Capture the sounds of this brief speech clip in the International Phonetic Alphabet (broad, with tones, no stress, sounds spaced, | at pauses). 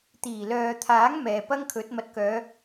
t̪ iː˨˩ l œː˨ t̪ʰ aː˨˥ ŋ m ɛː˨ p ɐ˥ ŋ kʰ ɵ˨˥ t̚ m ɐ˨ t̚ k œː˨˧